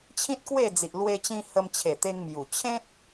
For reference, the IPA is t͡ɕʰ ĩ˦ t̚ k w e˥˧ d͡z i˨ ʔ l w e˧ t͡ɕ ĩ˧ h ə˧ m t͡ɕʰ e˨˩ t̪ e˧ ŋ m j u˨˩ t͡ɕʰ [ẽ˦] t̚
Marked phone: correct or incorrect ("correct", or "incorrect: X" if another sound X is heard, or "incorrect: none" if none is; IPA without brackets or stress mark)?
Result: correct